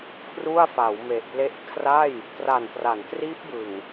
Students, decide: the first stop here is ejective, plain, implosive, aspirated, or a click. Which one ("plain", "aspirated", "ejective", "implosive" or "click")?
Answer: aspirated